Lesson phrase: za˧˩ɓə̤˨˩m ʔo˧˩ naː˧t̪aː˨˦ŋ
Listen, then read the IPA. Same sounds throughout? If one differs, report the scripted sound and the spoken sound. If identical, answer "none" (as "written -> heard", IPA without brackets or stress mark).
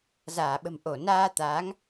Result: a˧˩ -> aː˧˩